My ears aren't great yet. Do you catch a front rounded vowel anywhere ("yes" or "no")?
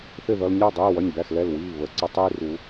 no